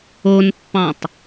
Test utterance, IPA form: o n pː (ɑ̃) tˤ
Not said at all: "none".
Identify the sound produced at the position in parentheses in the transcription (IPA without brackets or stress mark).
ɑ̃